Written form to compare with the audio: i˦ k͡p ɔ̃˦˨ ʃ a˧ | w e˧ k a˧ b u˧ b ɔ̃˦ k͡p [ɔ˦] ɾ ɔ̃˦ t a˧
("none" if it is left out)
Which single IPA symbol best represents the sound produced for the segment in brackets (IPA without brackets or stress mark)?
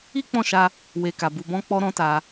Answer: ɔ˦